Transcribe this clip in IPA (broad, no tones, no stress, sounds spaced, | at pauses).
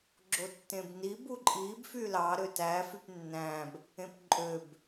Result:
ɡ͡ǁ o tː ẽ b n i b u ǃʼ i b f y l ɑ ɾ ø t æ f y p nː æ̃ b | ẽ p ǃʼ ø b